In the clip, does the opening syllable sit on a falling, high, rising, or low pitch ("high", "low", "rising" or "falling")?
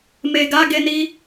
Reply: low